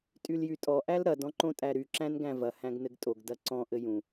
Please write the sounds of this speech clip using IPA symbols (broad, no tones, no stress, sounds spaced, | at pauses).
tʼ y l j y tʼ ɔ ʔ æ l ɾ ɐ d ɔ̃ ǃ õ tʼ æ ɾ y ǁ æ̃ n ɡ æ̃ v ɐ h æ̃ ɡ n ɘ ɡ tʼ o ɡ d ɐ ǀ ɔ̃ ʔ ɘ j ũ